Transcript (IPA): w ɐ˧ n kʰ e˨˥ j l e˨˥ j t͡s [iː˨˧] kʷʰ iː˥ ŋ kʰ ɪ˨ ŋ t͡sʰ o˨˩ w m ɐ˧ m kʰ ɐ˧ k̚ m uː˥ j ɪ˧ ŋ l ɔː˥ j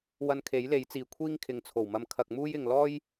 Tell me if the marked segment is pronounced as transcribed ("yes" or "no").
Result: no